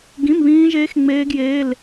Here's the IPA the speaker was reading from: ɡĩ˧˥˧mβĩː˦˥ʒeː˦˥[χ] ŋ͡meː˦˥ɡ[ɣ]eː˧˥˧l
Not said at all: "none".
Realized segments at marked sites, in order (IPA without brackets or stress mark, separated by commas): x, j